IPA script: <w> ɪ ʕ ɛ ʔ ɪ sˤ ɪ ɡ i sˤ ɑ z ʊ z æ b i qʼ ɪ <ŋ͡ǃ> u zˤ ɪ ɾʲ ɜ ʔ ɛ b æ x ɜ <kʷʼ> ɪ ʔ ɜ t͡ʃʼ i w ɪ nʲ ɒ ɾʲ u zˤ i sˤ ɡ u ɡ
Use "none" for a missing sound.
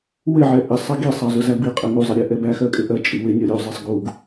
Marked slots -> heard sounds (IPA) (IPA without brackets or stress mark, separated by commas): w, ŋ, kʼ